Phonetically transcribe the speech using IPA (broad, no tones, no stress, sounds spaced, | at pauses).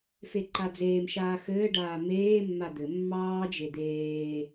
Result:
f e ǃ a d͡z eː m ʃ aː x ɘː ɖ aː m eː mː a d̪ ɘ mː ɑː d͡ʒ e d̪ eː